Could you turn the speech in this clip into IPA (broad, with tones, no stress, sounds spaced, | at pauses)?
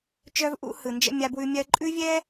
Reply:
t͡ʃ œ˦ v ʔ ṵ˦ h ɯ˨ n d͡ʒ ə̰˦ mʲ a˦ b w ʉ˦ mʲ ɜ˦ ǃʼ ʉ˦ vʲ ɛ˦